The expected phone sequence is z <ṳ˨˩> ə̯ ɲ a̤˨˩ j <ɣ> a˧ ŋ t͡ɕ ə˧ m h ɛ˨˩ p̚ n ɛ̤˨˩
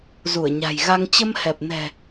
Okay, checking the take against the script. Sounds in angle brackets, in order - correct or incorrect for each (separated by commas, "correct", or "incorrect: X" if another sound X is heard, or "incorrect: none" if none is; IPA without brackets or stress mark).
incorrect: u˧˩, correct